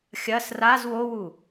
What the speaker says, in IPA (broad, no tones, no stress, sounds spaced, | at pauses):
xʲ ɐ s r a z w o w u